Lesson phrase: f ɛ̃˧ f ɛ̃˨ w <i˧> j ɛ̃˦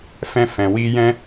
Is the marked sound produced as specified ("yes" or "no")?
yes